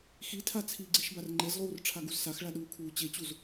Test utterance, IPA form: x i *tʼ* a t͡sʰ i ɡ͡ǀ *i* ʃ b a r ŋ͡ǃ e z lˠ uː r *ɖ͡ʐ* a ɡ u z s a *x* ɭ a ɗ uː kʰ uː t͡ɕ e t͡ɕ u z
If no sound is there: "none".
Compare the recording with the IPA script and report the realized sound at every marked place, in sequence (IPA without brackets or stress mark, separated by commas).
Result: tʰ, i, ʈ͡ʂʰ, x